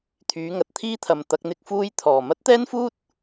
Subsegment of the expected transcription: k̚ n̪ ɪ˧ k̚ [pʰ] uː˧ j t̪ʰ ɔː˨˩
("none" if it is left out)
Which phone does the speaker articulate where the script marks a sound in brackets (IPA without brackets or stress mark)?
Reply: f